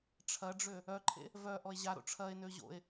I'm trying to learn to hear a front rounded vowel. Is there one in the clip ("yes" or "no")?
yes